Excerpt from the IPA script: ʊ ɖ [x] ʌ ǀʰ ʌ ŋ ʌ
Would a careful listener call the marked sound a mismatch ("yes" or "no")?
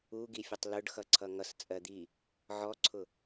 no